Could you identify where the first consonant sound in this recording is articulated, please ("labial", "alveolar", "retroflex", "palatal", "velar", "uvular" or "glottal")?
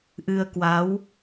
glottal